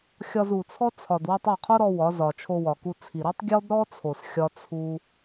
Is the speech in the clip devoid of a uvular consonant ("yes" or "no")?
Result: no